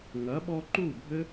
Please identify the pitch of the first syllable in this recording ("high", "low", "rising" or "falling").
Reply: rising